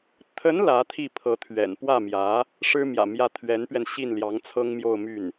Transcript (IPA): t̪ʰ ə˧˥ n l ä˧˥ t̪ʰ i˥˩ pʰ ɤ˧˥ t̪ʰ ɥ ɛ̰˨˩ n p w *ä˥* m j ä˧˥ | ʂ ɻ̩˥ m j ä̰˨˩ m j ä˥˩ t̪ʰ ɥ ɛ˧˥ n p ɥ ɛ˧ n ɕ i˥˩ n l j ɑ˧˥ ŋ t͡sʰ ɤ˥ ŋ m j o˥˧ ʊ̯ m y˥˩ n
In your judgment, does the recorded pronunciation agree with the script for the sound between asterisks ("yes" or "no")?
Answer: no